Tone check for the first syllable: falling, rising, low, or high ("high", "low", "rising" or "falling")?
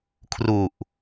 low